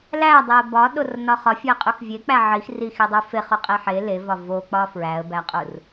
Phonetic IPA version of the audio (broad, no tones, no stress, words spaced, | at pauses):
lædˤeə̯ bɒɗornɒ χɒfʲɒɪ̯qʼux vʲek͡pæ ʕix rixidˤu feχuqʼe ħe levɒ vok͡pɒ fɹæə̯bæqʼur